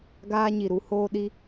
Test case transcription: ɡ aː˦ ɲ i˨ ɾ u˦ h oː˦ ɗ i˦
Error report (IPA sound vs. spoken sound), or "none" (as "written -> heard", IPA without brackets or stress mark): none